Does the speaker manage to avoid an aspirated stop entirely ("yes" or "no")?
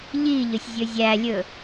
yes